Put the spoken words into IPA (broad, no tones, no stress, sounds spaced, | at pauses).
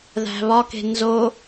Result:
ð æ̤ β ɒ k e̤ n z o